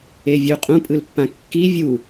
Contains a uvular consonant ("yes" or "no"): yes